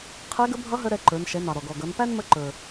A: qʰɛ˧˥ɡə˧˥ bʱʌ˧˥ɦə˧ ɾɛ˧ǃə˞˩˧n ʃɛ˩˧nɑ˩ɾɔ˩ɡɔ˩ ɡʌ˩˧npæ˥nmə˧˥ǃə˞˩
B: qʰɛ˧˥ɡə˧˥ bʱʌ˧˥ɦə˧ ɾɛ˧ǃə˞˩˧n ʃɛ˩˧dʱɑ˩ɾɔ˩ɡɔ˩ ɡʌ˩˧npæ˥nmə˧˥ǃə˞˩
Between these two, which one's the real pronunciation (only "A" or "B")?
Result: A